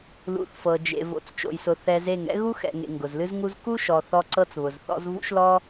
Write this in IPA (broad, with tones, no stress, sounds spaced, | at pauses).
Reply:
l ṵ˨˦ θ f ɤ˨ d͡ʒ ḛ˨ v o̰˨ t͡s t͡ʃ o̰˨ j s ʊ˨ θ ɛ˧ z e˦˨ ŋ ɛ̰˦ ɣ u˦ x ɛ̰˨ ŋ ḛ˨ ŋ ɡ ʊ˨ z l ɨ˦ z ŋ u˦ z k u˦ ʃ ɔ˨ θ ɔ˧ ǀ ɤ˦ t͡s β ʊ˨ z θ ɔ̰˦ z v ṵ˦ ʃ l ɔ˦